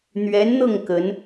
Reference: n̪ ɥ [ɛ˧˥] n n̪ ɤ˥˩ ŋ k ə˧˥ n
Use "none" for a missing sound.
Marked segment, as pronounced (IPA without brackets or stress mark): ɛ˧˥